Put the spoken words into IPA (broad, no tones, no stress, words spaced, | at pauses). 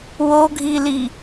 woɡʱili